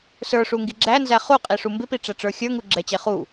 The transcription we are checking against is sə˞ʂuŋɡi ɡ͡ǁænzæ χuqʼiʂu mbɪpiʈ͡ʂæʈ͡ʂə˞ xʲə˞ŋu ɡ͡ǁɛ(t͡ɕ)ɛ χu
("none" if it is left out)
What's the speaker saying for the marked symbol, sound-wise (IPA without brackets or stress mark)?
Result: t͡ɕ